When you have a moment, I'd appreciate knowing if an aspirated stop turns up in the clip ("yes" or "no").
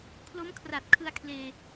yes